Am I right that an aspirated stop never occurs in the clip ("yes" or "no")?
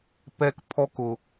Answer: no